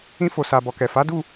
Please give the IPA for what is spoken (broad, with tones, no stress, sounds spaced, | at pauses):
ĩ˧ f o˨ s a˨ b ɔ˨ k ɛ˨ f a˨˦ d u˦˨